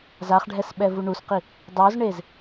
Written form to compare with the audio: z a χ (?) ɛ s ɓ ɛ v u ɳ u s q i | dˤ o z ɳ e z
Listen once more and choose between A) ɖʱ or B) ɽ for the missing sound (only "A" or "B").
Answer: A